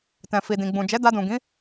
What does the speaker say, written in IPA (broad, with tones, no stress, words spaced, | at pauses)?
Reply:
tɛ̃˨ fi˨dĩ˨ɡ͡bũ˨ d͡ʒɛ˨˦da˧dũ˨ɡĩ˨˦